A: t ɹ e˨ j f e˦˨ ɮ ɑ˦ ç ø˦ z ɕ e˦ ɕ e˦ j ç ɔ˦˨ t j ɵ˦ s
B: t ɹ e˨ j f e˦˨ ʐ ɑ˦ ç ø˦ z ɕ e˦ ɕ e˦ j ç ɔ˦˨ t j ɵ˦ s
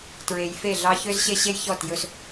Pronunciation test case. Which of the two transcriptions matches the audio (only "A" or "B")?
A